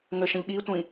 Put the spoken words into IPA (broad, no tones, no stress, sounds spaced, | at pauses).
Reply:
ŋ ə ʃ ə̃ ʎ ɠ i tʷ ĩ